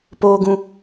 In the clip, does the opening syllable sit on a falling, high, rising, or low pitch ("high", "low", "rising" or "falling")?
low